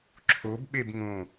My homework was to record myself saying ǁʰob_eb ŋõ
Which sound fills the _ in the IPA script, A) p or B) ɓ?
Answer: B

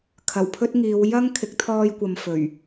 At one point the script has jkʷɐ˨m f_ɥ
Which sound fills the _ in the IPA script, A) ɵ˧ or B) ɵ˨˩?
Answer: B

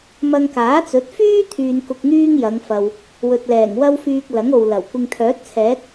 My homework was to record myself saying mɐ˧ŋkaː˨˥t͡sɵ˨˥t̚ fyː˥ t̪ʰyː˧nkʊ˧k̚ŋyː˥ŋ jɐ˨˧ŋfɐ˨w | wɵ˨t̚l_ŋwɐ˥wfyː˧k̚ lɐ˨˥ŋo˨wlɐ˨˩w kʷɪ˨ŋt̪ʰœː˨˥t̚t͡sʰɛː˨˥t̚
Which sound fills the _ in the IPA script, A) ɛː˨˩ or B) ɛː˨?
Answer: A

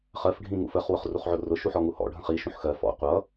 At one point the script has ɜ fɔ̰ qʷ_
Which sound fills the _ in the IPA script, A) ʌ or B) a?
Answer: A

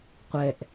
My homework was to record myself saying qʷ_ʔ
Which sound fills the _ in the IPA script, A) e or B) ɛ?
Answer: B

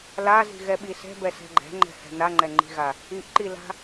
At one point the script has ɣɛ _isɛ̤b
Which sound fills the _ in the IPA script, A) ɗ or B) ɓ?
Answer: B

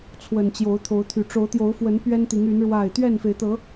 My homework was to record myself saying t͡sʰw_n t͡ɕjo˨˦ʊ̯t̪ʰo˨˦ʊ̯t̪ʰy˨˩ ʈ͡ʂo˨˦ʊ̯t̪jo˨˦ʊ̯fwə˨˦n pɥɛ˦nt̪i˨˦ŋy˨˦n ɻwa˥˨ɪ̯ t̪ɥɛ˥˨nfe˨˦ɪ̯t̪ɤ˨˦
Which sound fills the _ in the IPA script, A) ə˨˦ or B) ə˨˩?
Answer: B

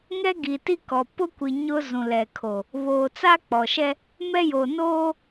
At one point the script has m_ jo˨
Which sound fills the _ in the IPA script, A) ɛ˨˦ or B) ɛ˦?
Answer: B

